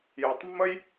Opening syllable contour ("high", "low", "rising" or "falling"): low